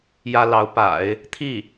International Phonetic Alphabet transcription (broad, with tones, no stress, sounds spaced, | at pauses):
j ä˥ l ɑ˧˥ ʊ̯ p a̰˨˩˦ ɪ̯ | t̪ʰ i˥˩